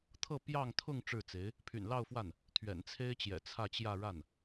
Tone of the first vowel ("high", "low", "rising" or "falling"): falling